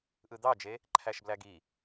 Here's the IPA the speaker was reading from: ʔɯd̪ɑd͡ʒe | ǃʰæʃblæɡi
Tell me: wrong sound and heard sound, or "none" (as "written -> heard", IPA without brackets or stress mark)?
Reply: none